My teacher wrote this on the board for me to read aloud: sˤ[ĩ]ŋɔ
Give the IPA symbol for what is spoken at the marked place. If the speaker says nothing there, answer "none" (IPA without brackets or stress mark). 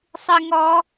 i